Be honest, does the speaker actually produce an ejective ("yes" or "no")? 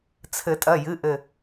yes